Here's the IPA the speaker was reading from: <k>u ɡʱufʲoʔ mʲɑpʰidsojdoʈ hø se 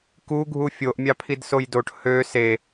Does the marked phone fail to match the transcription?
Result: no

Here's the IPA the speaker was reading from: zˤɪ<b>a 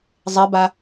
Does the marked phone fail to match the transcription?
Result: no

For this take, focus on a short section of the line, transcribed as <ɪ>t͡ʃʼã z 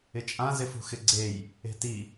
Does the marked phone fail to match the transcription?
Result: no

